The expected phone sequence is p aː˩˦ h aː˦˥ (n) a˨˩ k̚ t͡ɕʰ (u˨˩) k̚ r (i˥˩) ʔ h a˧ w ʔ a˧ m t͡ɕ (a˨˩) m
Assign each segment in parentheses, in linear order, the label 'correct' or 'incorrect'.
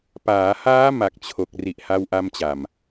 incorrect, incorrect, incorrect, correct

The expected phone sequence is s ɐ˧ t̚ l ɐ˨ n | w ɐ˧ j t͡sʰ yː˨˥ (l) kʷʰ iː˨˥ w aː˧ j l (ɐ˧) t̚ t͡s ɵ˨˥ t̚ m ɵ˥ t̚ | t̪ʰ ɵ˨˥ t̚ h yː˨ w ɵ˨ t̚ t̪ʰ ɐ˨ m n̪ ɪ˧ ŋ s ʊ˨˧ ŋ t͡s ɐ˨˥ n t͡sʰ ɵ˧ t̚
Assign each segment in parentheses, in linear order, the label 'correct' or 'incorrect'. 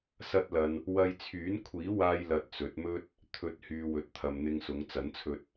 incorrect, correct

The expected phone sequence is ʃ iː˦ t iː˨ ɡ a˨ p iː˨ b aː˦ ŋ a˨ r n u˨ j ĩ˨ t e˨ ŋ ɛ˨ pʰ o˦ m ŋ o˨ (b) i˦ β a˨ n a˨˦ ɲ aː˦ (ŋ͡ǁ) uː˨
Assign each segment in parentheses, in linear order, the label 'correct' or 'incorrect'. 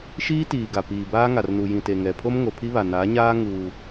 incorrect, incorrect

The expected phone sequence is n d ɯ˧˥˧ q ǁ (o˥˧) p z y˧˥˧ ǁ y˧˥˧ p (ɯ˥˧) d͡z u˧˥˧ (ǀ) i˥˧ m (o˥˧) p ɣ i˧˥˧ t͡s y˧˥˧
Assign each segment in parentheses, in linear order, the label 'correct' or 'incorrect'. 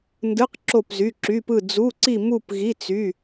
correct, correct, correct, incorrect

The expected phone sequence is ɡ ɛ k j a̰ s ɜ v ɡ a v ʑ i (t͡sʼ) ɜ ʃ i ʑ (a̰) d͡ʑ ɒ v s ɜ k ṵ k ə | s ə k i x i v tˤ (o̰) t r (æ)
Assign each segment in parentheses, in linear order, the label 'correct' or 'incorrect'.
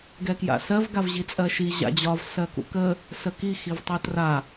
correct, correct, incorrect, incorrect

